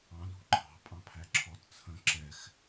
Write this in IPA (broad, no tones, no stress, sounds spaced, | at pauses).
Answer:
ɑ̃ l ṳ ǃʰ ɑ̤ pʼ ɑ̃ pʰ æ ǁʰ ɔ t t͡sʰ ə̃ ǁ ɛ x